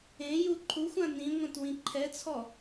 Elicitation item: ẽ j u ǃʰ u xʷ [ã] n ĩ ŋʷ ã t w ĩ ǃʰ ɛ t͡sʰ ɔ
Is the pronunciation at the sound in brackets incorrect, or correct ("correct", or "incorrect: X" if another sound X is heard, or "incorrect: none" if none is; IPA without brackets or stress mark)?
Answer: correct